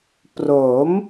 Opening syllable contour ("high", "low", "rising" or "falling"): rising